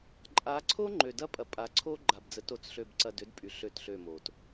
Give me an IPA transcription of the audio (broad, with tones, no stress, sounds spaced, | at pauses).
ǃʼ a˨˦ ǀʰ o˦ ŋ͡ǃ ø˨ d ɐ˦ pʼ ɐ˨ pʼ a˨˦ ǀʰ o˦ ɡ͡ǃ a˨ b d͡z ə˨˦ t o˨ t͡s ɬ ø˦˨ b ǀ ɐ˦˨ d ø˦ d pʼ y˨ ɬ ø˦ t ɬ ø˦˨ m o˨ t